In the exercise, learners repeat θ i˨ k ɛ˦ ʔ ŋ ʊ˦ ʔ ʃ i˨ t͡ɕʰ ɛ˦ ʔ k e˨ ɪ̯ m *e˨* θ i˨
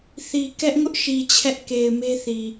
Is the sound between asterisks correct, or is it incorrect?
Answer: incorrect